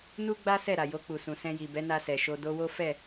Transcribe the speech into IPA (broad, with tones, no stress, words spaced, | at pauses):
nu˦ɡ͡ba˦ sɛ˦˨ ɾa˨jo˧k͡pu˨sũ˨ sɛ̃˧ji˨bɛ˨˦ na˧sɛ˨ʃo˧ do˧wo˦ fɛ˦˨